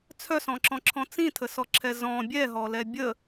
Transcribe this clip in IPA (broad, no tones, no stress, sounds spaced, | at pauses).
t͡sʰ œ s ɔ̃ ǁ ɔ̃ ǁʰ ɔ̃ t͡s ĩ tʰ ə s ɔ ǁʰ ɛ z ɔ̃ bʲ ɛ ɦ ɔ l ɛ bʲ ə